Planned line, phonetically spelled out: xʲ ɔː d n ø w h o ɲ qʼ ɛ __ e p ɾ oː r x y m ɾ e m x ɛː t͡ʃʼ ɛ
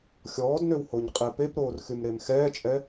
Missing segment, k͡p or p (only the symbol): p